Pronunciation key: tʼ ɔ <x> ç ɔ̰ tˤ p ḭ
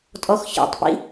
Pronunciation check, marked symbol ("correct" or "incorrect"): correct